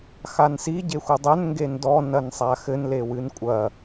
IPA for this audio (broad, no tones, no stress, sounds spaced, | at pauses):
x a n s i ɟ e xʷ ɨ dˤ ɛ n ŋ ɡ e n d ɔ n ɐ n sˤ a x ɘ n l e w ɨ n kʷʼ ɐ